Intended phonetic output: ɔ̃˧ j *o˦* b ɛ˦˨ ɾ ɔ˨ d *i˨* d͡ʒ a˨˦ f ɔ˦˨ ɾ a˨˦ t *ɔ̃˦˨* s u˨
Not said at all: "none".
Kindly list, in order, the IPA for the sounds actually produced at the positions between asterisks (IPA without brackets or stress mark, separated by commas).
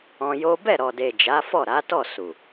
o˦, e˨, ɔ˦˨